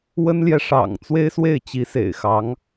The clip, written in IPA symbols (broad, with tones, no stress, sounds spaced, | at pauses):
w ə˥ n l j ɛ˨ ʂ ɑ̰˨˩ ŋ t͡s w e˥ ɪ̯ s w e˥˩ ɪ̯ t͡ɕ i˧˥ s ḛ˨˩ ɪ̯ x ɑ˧˥ ŋ